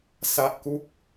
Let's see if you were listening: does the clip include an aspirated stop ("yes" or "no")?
no